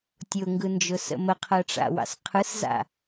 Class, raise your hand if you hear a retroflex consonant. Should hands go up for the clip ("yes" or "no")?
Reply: yes